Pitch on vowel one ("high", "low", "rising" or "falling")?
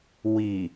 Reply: low